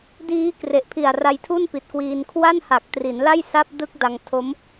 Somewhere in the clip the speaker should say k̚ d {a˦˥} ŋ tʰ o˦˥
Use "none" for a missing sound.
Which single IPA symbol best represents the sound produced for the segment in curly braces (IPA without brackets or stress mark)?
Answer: a˧